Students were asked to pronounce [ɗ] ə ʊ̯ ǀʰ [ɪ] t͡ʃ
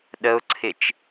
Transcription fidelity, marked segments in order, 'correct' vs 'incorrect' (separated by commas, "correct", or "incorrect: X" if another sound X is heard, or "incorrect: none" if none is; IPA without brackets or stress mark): correct, correct